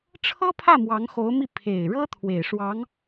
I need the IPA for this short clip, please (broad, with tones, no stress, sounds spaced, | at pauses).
ʈ͡ʂʰ ɤ˥ pʰ ä˥˩ m w ɑ˧˥ ŋ x o˧˥ ʊ̯ m i˥˩ pʰ e˨˩ ɪ̯ ɻ ɤ˥ t̪ʰ w e˨˩ ɪ̯ ʂ w ɑ˧˥ ŋ